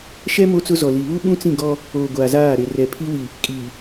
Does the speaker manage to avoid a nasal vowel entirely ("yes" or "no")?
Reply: no